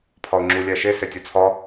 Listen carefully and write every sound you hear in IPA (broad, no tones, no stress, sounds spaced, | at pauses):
pʰ ɒ ʊ̯ ŋ͡ǁ u lʲ æ ʃ e s e tʲ o t͡sʰ ɒ